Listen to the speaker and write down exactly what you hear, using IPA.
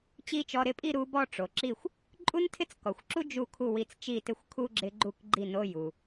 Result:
t͡ɕ i˥ t͡ʃ ɔ˧˥˧ ɾ ɪ˥˧ pʼ i˥˧ ɾ u˧˥ b ɔ˥˧ ʈ͡ʂ o˩ ǁ i˥˩ xʷ | ǃʼ u˥ n tʰ ɪ˥ t͡s k ɔ˩ xʷ ǁ u˥ d͡ʒ u˥˩ kʰ u˥˩ w i˧˥ t͡s t͡ʃ i˥˩ t ɪ˥˩ xʷ kʰ u˥ ɡ͡ǁ ɪ˧˥ ɡ͡ǃ u˥˩ k ɡ͡ǃ i˥˩ n o˧˥˧ j u˩

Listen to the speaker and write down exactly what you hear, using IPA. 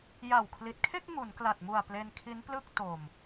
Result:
j a˨˩ w kʰ l i˨˩ t̚ kʰ e˥˩ k̚ ŋ u˩˦ n k l a˨˩ t̚ m u˨˩ a̯ p l e˧ n kʰ i˦˥ n p l ɯ˥˩ k̚ t o˨˩ m

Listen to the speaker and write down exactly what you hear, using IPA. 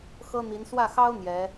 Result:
x ɤ˥ n̪ i˧˥ n s w ä˥˩ x ɑ˥ ʊ̯ n̪ j ɛ˧˥

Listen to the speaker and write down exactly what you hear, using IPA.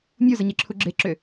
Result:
mʲ u z ə ɲ e ǁʰ u ɡ͡ǁ e ǁ ʏ

